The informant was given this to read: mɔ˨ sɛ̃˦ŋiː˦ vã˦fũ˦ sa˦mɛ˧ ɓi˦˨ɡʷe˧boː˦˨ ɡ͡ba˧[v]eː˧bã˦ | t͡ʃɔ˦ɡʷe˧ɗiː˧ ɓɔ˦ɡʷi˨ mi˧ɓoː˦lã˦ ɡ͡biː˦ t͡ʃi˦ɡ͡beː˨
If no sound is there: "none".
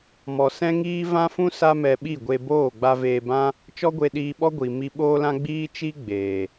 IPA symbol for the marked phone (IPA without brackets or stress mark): v